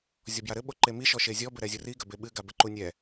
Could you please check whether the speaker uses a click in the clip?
yes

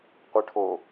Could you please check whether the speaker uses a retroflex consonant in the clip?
yes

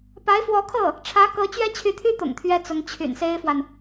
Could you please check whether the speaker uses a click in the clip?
no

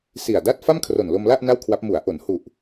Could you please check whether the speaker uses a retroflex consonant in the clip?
no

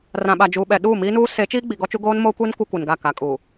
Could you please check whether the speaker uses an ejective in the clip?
yes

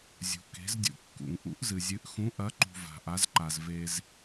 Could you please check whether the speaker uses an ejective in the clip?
no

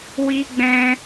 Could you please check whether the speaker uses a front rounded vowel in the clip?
no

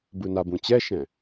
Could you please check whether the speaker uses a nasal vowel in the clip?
yes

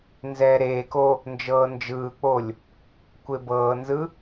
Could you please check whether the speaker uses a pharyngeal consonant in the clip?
no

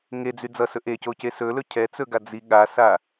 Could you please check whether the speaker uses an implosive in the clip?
yes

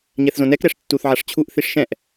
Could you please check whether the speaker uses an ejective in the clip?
no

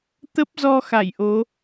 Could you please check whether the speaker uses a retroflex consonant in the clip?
no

